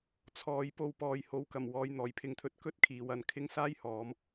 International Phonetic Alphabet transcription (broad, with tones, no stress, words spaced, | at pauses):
t͡sʰɔː˨˧jpo˧w pɔː˨jho˨˥wkɐ˨˩m wɔː˨˧jn̪ɔː˨˩jpʰɪ˧ŋt̪ʰɵ˨˥t̚ kɵ˥t̚kʰiː˨˧w ɐ˧n kʰɪ˥ŋ saː˥jhɔː˨˧m